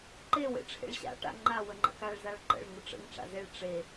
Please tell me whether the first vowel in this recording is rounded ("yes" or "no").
no